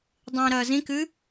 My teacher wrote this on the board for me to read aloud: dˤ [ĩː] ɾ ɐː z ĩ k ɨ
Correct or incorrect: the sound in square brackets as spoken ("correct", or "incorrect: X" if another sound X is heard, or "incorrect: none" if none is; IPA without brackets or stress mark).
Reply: correct